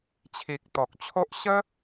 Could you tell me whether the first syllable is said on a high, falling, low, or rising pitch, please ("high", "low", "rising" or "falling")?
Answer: low